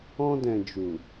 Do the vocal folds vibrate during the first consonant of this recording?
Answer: yes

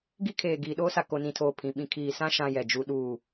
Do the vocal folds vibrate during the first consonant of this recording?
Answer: yes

